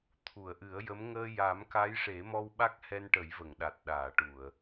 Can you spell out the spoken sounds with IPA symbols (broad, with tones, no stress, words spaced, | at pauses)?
t̪ʰu˨˩˨ə̯ ʔɨ˨˩˦ə̯jə˧˥m ŋəː˧ja˨˩˦mka˧˥j ʂe˨˩˦mɔ˧w ɓa˦˥k̚hɛ˧nʈə˨˩˦jvə˨˩˨ŋ ɗa˨˩t̚ɗaː˨˩˨ʈu˨˩˨ə̯